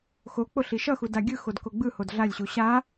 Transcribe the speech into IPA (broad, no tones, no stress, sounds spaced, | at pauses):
x o k͡p o ɬ i ʃ ʌ x u d a ɡʲ ɯ x o d k o ɡ͡b ɯ h o d ɮ a lʲ ɕ u ɕ a